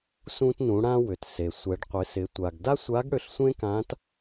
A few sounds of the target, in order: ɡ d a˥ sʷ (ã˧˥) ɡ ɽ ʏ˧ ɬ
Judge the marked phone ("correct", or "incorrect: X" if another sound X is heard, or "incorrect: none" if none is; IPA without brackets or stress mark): incorrect: a˧˥